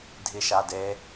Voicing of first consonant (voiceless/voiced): voiced